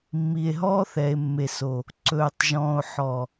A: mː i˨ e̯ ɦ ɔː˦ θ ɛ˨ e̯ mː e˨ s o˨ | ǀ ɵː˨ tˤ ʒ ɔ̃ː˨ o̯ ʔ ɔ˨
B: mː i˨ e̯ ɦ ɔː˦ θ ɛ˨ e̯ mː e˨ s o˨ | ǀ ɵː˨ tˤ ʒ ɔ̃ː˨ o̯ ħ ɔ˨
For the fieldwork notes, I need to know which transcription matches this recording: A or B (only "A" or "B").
B